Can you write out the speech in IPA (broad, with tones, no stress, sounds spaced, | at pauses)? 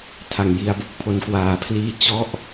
tʰ a˩˦ ŋ j i˦˥ a̯ b o˨˩ k̚ pʰ o˩˦ n k w aː˩˦ pʰ l iː˦˥ t͡ɕ ɔ˥˩ ʔ